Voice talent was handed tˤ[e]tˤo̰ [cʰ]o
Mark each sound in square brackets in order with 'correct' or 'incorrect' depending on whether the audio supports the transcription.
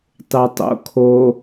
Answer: correct, incorrect

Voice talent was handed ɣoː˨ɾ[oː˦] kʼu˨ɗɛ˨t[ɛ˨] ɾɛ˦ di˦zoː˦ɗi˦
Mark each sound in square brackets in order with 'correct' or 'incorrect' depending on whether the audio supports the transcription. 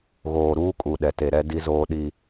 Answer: incorrect, incorrect

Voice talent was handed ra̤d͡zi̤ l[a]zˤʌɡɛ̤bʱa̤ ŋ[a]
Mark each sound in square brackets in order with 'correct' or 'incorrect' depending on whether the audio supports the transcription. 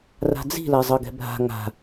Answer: correct, incorrect

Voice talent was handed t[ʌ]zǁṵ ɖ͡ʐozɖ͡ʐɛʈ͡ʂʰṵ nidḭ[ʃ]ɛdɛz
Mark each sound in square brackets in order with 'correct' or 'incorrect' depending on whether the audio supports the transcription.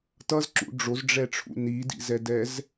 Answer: correct, incorrect

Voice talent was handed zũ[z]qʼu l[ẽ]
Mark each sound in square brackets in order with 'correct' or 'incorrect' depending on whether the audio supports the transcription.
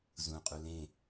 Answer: incorrect, correct

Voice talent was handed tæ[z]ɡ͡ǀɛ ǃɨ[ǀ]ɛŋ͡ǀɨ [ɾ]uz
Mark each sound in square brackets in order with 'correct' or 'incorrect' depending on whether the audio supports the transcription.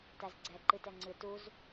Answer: correct, incorrect, incorrect

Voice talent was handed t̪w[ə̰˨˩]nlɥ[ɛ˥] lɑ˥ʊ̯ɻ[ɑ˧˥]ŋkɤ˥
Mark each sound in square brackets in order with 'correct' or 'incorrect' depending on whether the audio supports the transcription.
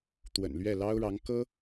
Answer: correct, incorrect, correct

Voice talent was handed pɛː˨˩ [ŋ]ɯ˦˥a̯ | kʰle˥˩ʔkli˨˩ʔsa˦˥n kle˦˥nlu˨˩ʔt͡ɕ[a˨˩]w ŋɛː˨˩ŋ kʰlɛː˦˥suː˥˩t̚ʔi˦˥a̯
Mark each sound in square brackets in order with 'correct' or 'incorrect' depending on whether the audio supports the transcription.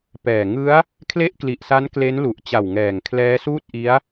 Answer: correct, correct

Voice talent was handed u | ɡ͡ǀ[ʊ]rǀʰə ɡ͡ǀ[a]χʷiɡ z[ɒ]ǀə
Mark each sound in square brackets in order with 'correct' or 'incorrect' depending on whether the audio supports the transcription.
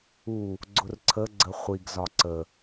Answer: correct, incorrect, correct

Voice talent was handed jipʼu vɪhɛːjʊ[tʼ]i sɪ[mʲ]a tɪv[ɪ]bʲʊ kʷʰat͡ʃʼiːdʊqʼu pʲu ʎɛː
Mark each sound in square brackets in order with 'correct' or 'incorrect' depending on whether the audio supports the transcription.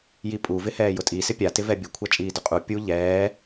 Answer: correct, incorrect, incorrect

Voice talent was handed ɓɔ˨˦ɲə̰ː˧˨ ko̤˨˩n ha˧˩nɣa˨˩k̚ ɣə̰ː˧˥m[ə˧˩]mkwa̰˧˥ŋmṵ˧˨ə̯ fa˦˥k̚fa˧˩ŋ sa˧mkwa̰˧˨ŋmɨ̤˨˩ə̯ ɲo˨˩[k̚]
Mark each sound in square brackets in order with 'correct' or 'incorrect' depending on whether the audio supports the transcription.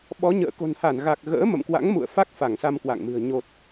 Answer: incorrect, incorrect

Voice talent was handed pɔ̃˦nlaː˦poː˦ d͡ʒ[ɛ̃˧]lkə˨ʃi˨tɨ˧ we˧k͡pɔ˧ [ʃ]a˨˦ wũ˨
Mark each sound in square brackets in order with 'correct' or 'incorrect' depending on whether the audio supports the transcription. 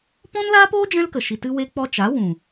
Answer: incorrect, incorrect

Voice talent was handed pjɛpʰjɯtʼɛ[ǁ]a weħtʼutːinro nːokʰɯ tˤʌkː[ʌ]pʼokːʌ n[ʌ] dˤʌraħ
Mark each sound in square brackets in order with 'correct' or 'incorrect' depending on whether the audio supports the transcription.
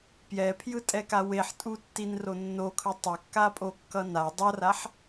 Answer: incorrect, incorrect, incorrect

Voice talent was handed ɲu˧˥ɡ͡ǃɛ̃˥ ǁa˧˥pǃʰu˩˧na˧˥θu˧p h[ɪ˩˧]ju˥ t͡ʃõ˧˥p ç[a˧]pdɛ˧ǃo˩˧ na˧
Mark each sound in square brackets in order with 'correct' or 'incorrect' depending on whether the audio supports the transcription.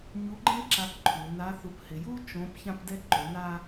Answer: correct, incorrect

